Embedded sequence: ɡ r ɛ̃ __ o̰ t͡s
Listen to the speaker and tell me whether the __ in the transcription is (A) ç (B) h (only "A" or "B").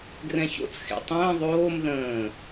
A